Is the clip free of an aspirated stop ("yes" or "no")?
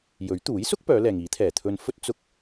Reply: no